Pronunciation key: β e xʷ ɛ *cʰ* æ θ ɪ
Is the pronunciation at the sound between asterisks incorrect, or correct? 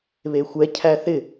correct